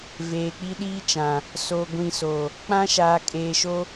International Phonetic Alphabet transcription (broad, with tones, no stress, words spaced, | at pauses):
veː˨k͡pi˦ɗiː˦t͡ʃã˨ | so˨ ɡʷĩ˨so˨ | k͡pã˦ʃaː˨ kʼeː˨ʃo˦